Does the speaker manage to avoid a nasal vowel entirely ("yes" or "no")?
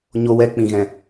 no